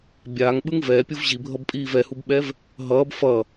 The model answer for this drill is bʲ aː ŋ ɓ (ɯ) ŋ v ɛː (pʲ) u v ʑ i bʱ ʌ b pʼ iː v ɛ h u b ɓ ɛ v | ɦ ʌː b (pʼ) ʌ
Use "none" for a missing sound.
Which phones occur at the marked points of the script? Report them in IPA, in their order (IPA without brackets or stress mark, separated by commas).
ɯ, pʲ, f